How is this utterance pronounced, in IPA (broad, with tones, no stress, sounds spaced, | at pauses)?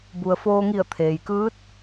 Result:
b u˩ ə̯ f oː˧ ŋ i˧˩ ə̯ t̪ʰ eː˩ j k ɯː˧˥ t̚